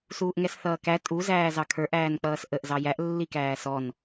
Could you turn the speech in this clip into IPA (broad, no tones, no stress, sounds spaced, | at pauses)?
s uː ʔ ŋ ɛ s θ ʌː k æ tʼ u z æː z ɑ kʰ ə˞ ʔ æː n k͡p ʌː s ʔ ə ʔ z ɑ j æ ʔ lː i k æː s ɔ n